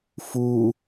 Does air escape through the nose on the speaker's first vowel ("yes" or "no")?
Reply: no